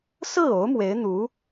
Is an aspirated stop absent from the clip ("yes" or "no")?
yes